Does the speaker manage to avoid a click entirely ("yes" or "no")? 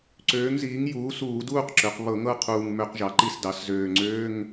no